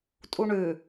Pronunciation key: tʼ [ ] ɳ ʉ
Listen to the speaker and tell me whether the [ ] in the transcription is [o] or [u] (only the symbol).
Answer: u